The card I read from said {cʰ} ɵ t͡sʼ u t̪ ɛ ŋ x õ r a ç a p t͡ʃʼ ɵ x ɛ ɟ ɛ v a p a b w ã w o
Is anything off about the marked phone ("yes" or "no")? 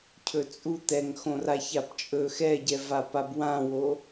no